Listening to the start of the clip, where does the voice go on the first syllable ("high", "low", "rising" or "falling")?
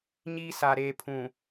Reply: high